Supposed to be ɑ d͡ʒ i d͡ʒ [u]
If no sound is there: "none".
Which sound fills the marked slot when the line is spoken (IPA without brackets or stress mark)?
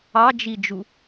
u